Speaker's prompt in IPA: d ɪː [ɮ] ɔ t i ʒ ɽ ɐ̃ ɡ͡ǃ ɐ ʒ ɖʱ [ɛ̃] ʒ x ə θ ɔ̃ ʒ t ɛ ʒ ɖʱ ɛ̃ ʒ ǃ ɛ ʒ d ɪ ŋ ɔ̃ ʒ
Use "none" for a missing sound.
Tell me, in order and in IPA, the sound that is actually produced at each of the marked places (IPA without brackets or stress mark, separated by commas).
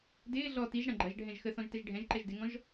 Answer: ɮ, ɛ̃